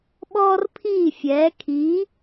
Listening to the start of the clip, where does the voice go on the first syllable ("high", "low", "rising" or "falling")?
high